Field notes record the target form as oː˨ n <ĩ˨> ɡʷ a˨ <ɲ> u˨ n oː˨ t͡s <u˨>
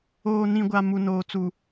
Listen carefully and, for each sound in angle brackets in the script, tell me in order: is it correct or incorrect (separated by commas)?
correct, incorrect, correct